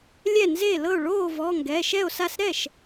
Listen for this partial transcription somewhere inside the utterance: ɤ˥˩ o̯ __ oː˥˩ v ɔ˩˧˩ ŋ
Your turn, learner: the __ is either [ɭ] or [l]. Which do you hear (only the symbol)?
ɭ